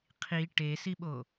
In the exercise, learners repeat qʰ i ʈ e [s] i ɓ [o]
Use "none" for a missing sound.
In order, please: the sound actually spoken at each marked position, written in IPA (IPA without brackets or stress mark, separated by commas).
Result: s, o